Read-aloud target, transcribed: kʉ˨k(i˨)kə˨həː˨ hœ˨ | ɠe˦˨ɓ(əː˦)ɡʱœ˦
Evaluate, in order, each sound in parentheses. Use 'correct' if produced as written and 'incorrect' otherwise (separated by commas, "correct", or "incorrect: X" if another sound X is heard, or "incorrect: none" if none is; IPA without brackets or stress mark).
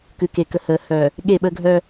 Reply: incorrect: e˨, incorrect: ə˦